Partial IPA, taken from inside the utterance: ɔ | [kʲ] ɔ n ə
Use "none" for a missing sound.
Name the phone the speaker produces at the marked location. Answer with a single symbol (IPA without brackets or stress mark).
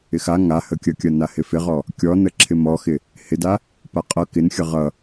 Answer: kʲ